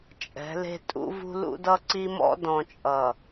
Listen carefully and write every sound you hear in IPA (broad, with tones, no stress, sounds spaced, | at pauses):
t͡ʃʼ ɛ̤˨˦ l e̤˦ tʼ ṵ˦ v ṳ˦ l ṵ˦ d ʌ˦ ǀ i˦ m ɔ̰˦ d ɔ̃˨ t͡ʃʼ ʌ˨